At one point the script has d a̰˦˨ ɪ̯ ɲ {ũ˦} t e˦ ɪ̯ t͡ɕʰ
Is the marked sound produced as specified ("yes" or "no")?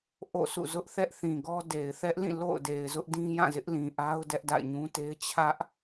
yes